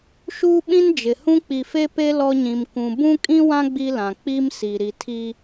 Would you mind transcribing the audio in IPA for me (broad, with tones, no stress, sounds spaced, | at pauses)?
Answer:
ʃ uː˦ ɓ ĩ˦ n d͡ʒ ɪ˨ h ũ˦ k͡p i˨ f e˦ p e˦ l ɔ˦ ɲ ĩ˨ m k ũ˨ b ũ˦ kʼ ĩ˦ w ã˦ ɡ͡b i˦ l ã˨ k͡p i˦ m s i˨ ɾ i˨ tʰ iː˦